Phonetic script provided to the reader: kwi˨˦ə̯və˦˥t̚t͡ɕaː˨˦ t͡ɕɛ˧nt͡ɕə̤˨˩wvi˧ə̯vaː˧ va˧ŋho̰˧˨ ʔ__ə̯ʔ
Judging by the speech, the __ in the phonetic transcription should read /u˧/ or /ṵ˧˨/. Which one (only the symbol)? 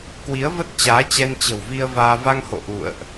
ṵ˧˨